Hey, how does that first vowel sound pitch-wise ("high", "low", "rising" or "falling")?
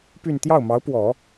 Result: falling